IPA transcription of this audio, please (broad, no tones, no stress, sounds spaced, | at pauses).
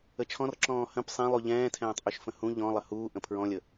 ə t͡ʃʰ ɔ̃ r ǁ ɔ̃ː h ə̃ p sˤ ɛ̃ lˠ u ʎ ɛ̃ː tʰ ɛ̃ː tˤ ʔ y ʃ f ə̃ h ũ ʎ ɔ̃ lˠ ə h uː ʔ ə̃ pʰ ɹ ɔ̃ lʲ ə